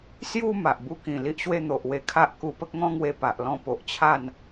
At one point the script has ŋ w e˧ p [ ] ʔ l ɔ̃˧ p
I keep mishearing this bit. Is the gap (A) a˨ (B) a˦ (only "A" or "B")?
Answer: A